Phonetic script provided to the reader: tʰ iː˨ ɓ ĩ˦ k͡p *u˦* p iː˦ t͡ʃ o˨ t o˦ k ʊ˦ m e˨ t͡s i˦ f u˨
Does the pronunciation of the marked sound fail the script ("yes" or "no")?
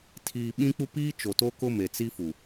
no